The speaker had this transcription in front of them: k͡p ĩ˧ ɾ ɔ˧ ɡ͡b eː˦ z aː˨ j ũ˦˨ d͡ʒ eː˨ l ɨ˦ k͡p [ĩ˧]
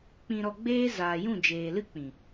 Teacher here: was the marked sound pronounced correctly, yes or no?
no